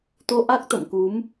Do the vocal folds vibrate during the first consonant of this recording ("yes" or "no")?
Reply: no